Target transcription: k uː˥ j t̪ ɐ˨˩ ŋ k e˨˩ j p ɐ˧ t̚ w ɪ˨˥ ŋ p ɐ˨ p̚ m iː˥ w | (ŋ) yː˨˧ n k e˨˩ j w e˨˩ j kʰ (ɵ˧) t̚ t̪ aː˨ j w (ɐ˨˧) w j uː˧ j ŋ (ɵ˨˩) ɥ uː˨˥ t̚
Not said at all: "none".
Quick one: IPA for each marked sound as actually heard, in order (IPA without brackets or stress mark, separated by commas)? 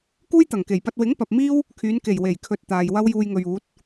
kʰ, ɵ˨, ɐ˥, ɵ˨